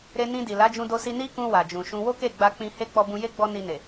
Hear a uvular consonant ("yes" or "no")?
no